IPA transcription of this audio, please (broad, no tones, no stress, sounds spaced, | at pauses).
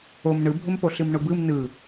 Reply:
o m ɳ ɯ bʱ ʊ m p o ɬ ɨ m ɳ ʊ b ɯ m n ɯ